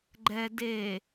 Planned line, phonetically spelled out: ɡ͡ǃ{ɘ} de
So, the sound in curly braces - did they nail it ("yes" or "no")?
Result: no